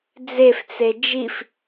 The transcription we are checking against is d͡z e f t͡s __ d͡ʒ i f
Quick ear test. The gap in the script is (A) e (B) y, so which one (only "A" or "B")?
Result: A